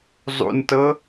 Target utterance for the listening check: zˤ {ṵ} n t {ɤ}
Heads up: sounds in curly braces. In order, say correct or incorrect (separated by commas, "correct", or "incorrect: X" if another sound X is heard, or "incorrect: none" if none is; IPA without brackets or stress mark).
correct, correct